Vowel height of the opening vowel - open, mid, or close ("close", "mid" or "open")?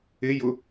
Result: close